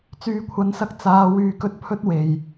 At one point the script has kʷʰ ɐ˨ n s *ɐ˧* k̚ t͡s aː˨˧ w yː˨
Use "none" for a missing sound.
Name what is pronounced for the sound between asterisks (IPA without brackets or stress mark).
ɐ˧